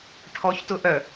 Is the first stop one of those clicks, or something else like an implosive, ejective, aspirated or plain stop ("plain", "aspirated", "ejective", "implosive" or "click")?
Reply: aspirated